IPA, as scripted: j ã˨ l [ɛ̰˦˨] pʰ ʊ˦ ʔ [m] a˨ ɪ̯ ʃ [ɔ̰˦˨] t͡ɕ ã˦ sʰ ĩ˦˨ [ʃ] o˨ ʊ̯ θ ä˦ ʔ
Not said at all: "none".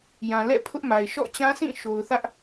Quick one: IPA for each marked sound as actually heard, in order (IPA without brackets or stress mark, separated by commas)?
ɛ̰˦˨, m, ɔ̰˦˨, ʃ